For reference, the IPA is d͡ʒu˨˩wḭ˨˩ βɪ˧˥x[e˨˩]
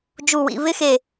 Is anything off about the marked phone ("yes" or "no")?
no